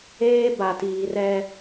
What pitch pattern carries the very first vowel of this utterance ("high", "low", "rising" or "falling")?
high